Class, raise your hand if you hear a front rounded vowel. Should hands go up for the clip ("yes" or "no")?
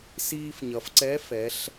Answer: no